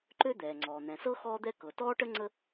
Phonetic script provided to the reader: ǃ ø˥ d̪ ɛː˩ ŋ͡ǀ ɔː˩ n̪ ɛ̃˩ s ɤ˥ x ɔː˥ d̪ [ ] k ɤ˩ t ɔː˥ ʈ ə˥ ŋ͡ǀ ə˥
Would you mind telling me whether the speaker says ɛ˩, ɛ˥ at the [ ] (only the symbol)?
ɛ˥